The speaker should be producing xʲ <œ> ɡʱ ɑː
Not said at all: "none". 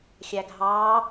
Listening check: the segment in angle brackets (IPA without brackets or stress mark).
æ